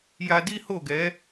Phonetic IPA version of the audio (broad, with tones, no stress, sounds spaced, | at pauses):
j a˧ d i˦ h o˦˨ ɡ ɛ˨˦